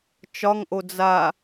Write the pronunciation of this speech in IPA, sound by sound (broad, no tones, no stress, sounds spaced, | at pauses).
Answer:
t͡ʃ ɒ ŋ ʔ o d͡z a